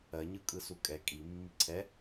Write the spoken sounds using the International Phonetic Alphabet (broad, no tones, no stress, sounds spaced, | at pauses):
ɜ ɲ ɯ kʼ ɯ s u kʼ ɛ kʼ i mː i ǀʰ ɛ